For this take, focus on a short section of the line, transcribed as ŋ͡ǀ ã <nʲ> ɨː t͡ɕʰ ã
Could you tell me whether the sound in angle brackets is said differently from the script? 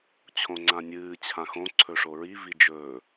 no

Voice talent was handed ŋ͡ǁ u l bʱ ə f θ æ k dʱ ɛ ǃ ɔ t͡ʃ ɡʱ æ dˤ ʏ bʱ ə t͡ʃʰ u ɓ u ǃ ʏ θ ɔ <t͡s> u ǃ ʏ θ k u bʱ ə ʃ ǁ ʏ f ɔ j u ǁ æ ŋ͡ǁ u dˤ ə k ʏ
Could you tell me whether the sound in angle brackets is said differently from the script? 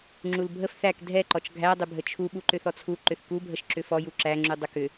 yes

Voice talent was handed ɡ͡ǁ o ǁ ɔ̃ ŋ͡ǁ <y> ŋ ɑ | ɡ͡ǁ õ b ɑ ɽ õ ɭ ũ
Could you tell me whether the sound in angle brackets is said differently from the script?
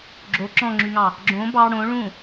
no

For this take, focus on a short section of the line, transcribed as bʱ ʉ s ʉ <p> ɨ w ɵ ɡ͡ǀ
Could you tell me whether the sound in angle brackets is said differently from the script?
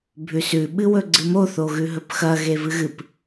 yes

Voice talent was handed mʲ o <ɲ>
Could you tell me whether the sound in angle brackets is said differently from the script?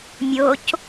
yes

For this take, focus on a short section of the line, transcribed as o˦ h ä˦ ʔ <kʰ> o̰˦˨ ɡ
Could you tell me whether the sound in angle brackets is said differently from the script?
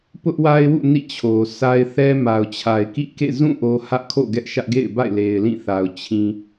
no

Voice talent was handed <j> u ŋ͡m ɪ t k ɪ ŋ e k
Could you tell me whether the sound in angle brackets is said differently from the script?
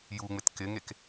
no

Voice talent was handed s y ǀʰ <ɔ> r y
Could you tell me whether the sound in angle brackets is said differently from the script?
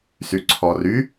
no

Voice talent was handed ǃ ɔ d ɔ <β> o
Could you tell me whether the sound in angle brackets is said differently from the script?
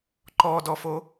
yes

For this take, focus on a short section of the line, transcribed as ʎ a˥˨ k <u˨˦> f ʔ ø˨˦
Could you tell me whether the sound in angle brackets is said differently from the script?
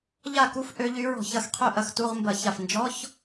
yes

